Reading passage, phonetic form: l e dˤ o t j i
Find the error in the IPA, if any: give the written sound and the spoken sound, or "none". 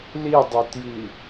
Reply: e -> i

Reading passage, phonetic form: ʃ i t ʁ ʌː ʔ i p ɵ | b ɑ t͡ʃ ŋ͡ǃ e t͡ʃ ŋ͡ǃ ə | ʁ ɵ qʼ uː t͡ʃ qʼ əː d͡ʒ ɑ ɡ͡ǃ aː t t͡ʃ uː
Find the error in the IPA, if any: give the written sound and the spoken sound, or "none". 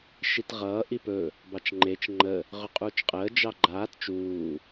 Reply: none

